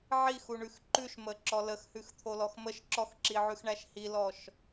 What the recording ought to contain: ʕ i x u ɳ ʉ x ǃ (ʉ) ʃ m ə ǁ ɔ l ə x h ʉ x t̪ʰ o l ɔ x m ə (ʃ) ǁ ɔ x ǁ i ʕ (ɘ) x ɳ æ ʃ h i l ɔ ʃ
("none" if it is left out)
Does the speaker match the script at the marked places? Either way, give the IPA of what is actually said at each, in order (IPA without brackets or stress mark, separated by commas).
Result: ʉ, ʃ, ʉ